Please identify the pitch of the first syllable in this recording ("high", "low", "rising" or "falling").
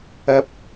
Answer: low